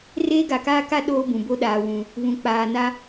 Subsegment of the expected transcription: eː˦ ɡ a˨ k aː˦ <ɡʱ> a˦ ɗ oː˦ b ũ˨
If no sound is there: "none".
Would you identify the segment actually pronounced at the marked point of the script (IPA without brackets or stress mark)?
k